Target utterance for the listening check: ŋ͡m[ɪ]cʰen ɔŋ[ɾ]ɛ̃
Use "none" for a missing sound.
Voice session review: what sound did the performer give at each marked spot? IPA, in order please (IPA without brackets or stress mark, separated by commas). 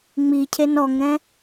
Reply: i, ɾ